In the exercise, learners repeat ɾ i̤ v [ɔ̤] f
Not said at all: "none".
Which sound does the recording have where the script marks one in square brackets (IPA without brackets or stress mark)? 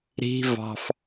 ɑ̤